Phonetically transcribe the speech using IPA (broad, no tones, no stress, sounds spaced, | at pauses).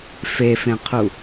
f e f ẽ qʰ u